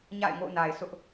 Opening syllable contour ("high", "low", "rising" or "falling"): falling